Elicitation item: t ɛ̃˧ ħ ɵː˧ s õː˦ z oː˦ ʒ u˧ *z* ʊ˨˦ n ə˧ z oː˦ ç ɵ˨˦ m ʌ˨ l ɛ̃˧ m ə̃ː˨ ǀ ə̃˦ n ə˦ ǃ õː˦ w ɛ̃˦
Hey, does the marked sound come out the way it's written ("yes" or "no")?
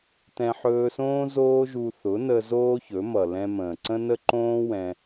no